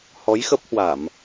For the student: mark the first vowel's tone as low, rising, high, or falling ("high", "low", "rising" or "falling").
rising